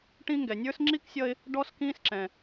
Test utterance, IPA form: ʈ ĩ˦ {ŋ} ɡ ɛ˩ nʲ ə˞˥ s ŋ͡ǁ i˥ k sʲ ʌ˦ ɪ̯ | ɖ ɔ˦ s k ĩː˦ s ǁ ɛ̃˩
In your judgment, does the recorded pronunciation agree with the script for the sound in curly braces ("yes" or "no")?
yes